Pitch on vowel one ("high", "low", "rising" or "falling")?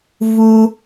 high